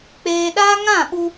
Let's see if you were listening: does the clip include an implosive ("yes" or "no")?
yes